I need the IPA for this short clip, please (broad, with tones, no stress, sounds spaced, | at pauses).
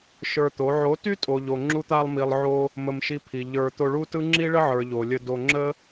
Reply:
ʃ ə˞˧ t̪ o˨˦ ʕ o˨˦ t y˦ tʼ o˨ ʎ o˨ ŋ͡ǁ u˧ t̪ a˧ lˠ m i˨ lˠ ʕ o˧ | m ə˧ m ʃ i˧ pʰ i˨ ʎ ə˞˨ t̪ o˧ ɭ u˦ t ɯ˦ ŋ͡ǁ i˦ ɭ ə˦ ʕ ə˞˨ ʎ o˨ lʲ ə˧ d o˧ ŋ͡ǁ ə˦